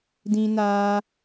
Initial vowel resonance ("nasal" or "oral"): nasal